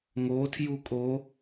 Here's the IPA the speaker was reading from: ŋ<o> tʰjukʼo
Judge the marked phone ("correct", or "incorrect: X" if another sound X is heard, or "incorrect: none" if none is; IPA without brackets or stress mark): correct